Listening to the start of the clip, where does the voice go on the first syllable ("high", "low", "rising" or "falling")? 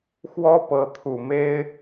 high